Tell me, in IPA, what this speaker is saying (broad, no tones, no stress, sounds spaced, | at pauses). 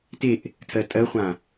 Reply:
t e ʔ | tʰ ɜ tʼ ɜ χʷ ã